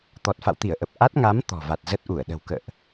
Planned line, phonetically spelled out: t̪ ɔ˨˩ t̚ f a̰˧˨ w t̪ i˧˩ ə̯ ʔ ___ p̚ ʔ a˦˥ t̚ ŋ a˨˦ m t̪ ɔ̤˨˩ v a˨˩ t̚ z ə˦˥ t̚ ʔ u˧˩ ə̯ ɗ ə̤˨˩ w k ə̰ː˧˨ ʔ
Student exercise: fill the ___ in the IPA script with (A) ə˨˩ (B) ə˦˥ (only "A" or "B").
A